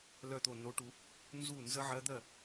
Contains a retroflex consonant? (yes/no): yes